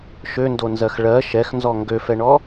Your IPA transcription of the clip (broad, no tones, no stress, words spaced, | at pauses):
ʃøndonzɜx ɭɜ ʃɛxnzɔ ŋɡøfɛɳɔ